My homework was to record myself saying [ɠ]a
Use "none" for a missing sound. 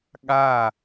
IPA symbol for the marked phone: ɠ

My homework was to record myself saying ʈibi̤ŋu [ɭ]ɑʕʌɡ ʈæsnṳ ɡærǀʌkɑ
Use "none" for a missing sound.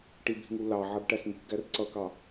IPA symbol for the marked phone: l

